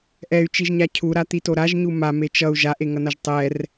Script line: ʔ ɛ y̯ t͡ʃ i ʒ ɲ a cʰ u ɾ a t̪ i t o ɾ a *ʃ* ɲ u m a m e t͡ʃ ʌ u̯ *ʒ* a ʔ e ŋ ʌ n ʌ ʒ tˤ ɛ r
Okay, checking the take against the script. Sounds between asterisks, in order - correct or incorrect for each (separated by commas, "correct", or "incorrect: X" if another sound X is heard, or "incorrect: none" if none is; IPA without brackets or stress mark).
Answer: incorrect: ʒ, correct